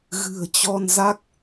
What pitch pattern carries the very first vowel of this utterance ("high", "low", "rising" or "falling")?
low